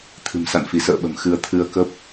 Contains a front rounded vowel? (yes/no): no